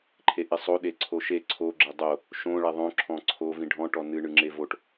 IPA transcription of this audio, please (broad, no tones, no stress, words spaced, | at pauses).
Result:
ǃʰeʔisˤo ɗeǀʰoʃe ǀʰo ɡ͡ǁedˤo | ʃõɭɛ ðˤõǁʰɔ̃ ǀʰo vĩɖʱɔ̃ʈɔ nɨɳɨ ŋ͡ǁevoʈ